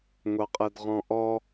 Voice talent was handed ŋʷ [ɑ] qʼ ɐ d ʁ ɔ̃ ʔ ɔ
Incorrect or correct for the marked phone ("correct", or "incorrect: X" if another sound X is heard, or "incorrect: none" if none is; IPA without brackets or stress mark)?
correct